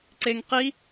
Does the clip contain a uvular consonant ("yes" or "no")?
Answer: yes